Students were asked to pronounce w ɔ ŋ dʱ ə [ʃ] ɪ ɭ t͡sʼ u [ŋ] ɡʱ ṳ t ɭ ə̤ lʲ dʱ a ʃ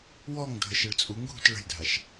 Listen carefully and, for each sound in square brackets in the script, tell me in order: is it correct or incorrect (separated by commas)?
correct, correct